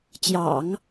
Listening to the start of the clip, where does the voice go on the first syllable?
low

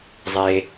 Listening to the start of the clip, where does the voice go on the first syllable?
low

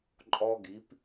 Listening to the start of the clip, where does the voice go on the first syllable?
high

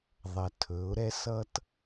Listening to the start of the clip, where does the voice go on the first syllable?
low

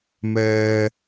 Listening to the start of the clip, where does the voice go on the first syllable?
high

